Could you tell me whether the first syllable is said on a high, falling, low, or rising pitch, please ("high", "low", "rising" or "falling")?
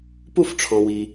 falling